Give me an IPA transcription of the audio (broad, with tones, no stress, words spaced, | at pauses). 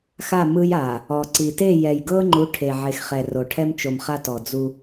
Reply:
xa˦˨mɯ˦j a˨ | ɔ˨ǀi˨ te˦˨jɛ˨jɡɤ˦ŋ͡ǃu˨˦ ʈʰe˨ʕe˨xχɛ˨ ro˨ʈʰɛ˦mt͡ʃo˨mχa˦ tɔ˨d͡zu˦